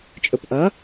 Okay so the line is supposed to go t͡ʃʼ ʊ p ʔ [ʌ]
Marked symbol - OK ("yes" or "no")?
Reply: yes